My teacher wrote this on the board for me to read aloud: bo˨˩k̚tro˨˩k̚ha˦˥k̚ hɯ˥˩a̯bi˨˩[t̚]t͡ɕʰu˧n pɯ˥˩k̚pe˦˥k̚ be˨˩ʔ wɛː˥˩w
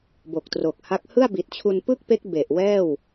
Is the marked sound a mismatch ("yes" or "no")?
no